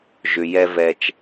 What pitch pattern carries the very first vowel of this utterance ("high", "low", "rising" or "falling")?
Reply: low